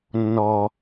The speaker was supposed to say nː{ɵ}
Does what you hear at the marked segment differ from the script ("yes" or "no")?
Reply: yes